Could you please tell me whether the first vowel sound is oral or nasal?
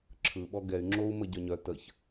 oral